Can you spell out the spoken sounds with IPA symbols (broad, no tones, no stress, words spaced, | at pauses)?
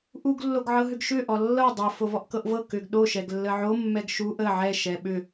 ʔuɡ lːoɡʕɤɦʏɡʃʏ ʔɔlːɤ dˤɤ fovɔʔkɤʔvɤ kʏɡ ɗo ʃɛɡlːəʕo mːɛɡʃu ʔə ʕɛ ʃɛɓʏ